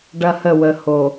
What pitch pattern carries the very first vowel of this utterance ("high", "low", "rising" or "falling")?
high